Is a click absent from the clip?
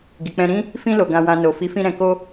yes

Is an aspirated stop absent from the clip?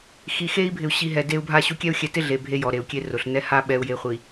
yes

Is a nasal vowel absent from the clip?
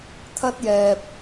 yes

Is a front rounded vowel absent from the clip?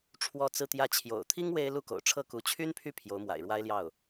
no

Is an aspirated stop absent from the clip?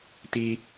yes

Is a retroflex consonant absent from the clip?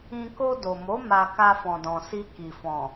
yes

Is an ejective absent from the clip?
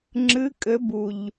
no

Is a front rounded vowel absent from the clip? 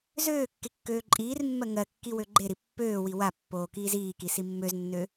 no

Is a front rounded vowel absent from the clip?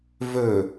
yes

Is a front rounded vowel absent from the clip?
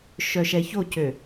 no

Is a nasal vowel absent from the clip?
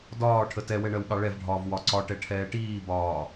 yes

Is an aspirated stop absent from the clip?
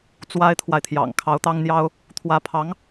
no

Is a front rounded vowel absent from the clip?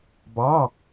yes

